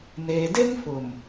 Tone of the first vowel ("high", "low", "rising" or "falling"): low